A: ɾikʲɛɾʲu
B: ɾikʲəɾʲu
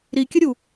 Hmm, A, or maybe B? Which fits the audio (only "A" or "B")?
B